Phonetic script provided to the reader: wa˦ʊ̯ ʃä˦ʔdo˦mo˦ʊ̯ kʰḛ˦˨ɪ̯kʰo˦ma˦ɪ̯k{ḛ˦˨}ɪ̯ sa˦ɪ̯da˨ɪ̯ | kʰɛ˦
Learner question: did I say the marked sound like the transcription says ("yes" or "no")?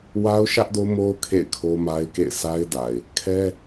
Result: yes